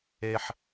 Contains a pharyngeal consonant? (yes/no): yes